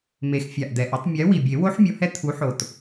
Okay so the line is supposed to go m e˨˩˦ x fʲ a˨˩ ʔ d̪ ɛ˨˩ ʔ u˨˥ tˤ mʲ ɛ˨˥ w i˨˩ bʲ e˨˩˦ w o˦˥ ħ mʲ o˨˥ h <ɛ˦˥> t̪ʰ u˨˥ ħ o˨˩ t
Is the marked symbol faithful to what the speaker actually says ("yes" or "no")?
yes